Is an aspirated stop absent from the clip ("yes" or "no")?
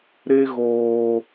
yes